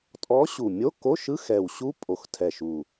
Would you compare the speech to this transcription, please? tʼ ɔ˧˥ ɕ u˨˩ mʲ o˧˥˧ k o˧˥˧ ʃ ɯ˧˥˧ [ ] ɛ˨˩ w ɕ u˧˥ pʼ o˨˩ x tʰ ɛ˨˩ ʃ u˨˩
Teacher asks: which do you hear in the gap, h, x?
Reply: x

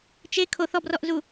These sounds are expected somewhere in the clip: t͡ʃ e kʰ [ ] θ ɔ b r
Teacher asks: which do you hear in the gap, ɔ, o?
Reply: o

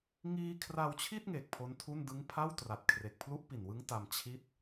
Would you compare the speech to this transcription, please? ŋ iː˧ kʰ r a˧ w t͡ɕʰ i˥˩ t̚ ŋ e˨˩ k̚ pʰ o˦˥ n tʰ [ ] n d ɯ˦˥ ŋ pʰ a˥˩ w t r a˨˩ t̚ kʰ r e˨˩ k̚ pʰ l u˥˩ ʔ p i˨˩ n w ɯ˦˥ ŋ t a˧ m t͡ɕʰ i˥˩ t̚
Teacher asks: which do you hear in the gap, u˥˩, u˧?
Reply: u˥˩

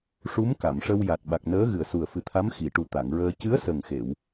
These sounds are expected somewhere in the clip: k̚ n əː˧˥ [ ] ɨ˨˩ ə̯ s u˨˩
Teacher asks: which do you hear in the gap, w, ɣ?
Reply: ɣ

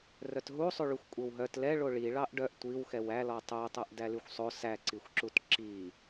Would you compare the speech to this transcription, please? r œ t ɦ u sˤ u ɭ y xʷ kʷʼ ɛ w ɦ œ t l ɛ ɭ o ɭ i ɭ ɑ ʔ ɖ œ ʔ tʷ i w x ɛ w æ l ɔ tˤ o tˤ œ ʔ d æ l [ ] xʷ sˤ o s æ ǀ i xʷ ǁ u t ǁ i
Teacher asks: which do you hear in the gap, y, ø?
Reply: y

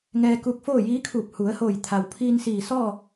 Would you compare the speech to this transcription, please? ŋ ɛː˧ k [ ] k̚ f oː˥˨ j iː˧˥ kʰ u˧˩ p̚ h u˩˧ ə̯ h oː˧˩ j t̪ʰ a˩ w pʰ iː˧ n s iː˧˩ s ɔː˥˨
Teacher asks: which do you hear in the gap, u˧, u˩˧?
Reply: u˧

